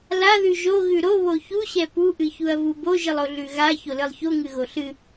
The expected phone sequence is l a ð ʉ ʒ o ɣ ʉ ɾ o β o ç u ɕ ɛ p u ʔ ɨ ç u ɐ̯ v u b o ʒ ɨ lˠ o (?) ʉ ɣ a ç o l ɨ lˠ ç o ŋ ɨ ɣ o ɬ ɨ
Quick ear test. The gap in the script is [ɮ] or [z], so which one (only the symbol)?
ɮ